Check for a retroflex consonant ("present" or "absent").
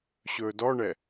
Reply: present